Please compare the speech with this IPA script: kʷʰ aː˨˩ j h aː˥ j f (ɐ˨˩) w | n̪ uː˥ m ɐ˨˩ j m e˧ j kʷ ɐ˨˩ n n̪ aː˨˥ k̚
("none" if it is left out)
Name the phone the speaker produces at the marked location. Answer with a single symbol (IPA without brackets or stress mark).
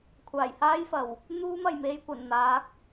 ɐ˨˩